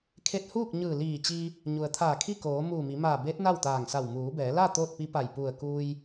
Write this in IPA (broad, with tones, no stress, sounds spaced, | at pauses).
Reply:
kʰ e˧ t̚ h uː˥˨ k̚ ɲ ɯː˧˩ l iː˧˩ t͡ɕ i˧ | ɲ u˩ ə̯ t̪ʰ aː˧˩ kʰ i˥˨ k oː˩˧ m uː˧˩ m i˩˧ m aː˧˩ b eː˧˥ t̚ n a˥˨ w t̪ aː˧˩ ŋ s a˧˩ w m uː˩˧ b ɛː˩˧ l a˥˨ t̪ oː˥˨ t̚ p i˧˥ p a˧˩ j p u˧˩ ə̯ k uː˧ j